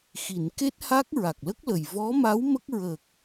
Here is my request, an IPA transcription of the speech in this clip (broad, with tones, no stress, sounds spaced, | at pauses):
x i˨˩˨ n k e˦˥ t̚ h a˦˥ k̚ ɹ a˨˩ k̚ l ə˦˥ k̚ l ə˨˩ j v ɔ˧˥ m a˧˥ w m ə˦˥ k̚ ɹ ə˨˩ k̚